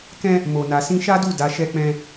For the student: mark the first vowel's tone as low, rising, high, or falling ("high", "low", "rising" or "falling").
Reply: high